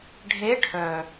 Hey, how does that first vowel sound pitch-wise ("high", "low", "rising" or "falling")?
rising